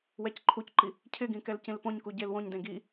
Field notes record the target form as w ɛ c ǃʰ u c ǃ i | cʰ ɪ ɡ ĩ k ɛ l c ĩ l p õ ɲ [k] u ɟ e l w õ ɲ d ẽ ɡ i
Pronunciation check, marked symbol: correct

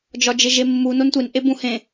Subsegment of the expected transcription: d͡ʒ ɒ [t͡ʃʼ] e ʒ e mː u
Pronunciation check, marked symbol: incorrect: d͡ʒ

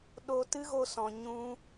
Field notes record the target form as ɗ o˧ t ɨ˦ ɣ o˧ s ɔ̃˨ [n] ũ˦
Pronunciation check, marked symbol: incorrect: ɲ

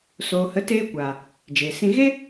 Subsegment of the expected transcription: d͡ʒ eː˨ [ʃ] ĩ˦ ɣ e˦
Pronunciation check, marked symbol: incorrect: s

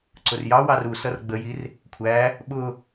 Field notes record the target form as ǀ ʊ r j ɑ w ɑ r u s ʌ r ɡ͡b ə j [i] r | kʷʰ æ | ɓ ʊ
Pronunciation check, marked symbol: correct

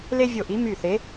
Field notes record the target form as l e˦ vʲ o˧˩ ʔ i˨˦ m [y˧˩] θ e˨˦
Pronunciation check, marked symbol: correct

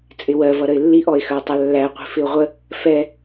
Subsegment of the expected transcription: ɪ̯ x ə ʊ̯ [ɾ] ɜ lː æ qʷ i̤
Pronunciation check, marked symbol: incorrect: tˤ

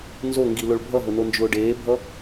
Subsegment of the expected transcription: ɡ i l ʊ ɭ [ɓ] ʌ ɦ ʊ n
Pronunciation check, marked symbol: incorrect: bʱ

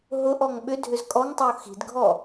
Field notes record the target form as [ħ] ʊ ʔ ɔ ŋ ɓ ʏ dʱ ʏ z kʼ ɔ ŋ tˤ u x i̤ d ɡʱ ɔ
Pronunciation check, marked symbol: incorrect: ɦ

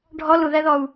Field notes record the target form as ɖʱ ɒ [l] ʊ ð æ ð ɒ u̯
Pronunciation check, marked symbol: correct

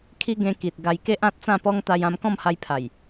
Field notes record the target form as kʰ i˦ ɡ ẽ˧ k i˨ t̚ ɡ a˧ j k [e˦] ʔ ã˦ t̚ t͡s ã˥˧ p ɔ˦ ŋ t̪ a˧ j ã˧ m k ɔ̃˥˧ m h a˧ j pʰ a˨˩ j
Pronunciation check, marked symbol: correct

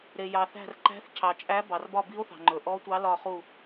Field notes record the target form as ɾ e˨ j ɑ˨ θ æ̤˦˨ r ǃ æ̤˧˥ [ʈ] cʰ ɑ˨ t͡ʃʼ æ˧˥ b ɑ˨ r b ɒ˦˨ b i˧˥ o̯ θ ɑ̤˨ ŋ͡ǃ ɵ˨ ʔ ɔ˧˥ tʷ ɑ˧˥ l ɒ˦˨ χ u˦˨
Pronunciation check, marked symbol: incorrect: θ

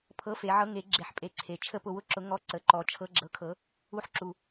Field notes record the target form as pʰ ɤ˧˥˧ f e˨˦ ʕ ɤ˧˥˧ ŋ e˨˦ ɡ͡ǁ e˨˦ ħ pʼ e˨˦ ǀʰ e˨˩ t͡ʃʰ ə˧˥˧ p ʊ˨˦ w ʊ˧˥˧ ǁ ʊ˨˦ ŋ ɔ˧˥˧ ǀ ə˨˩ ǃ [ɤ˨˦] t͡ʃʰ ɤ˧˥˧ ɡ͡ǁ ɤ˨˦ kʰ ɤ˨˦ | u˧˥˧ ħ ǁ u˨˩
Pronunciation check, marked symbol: incorrect: ɔ˨˦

